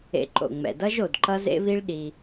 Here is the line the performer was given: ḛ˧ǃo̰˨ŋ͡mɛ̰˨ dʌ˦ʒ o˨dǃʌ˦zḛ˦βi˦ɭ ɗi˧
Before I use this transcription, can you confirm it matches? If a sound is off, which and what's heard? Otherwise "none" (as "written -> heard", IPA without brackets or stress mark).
none